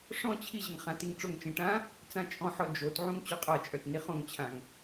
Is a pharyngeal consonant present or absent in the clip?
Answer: present